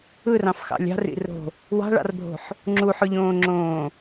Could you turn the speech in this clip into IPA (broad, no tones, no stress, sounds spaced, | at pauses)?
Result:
ɯ r ɑ̃ f x ɑ̰ lʲ ɑ̤ r ḭ r o̤ | w ɑ̤ ɭ ɑ̰ r bʱ o̤ ħ | ŋ͡ǁ u ħ ʊ ʎ õː ŋ͡ǁ õː